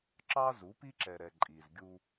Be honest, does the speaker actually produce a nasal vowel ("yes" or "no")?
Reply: no